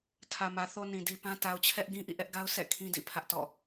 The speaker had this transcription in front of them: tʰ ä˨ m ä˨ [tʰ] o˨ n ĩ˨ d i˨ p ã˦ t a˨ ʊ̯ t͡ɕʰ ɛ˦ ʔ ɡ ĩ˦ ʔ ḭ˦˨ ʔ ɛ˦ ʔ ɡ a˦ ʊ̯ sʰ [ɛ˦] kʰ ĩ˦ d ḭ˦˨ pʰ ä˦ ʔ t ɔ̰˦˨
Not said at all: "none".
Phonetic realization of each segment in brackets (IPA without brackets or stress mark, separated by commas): θ, ɛ̰˦˨